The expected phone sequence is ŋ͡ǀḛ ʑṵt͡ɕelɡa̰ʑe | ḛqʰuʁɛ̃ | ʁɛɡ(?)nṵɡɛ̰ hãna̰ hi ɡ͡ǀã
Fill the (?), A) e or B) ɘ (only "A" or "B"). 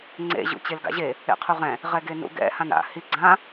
A